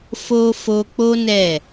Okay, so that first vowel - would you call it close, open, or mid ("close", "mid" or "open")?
mid